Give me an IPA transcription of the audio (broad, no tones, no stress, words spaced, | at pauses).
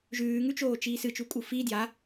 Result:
ʒʉːŋʉt͡ʃoːt͡ʃiː sɨt͡ʃukʼu fi dja